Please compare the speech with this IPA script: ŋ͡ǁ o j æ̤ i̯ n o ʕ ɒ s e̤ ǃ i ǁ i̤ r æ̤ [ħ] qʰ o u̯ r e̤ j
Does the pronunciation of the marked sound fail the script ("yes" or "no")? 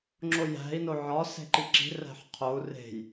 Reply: no